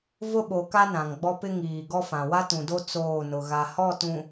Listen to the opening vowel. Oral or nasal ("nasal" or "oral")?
oral